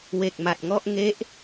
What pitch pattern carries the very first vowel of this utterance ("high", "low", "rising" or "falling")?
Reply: low